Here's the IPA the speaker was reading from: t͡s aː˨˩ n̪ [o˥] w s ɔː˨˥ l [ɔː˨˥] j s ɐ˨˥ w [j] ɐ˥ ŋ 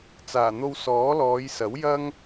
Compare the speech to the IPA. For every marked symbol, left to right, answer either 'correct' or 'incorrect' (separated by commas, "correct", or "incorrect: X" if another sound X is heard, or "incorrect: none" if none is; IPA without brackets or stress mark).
incorrect: o˧, incorrect: ɔː˨˧, correct